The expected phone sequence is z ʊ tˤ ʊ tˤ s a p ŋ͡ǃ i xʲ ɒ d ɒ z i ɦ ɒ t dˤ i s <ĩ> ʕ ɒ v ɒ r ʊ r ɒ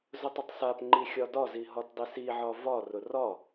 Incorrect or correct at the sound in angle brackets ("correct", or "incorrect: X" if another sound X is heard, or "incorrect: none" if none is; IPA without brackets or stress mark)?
incorrect: i